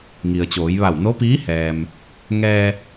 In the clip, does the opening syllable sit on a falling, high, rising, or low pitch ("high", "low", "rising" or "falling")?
low